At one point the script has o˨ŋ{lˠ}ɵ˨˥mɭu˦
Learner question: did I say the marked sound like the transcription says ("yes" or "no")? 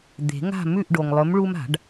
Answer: yes